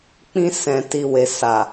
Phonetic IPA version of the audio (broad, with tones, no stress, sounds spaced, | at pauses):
k͡p ĩ˧ s ɛ̃˨ t i˨ w e˨ s a˨